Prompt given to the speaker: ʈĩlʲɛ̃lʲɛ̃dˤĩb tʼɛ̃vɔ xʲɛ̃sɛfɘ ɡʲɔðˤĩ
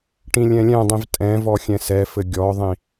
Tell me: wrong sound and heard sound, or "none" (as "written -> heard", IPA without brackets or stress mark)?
b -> v